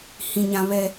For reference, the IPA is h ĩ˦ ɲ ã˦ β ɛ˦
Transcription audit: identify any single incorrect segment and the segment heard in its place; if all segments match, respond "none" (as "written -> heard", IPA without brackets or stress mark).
none